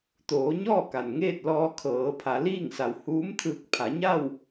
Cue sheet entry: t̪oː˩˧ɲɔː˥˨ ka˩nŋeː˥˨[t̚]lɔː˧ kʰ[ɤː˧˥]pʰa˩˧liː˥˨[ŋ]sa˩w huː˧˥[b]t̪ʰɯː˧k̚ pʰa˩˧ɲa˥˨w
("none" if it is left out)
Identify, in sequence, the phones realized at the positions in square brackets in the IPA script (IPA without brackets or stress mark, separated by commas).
t̚, ɤː˩˧, ŋ, m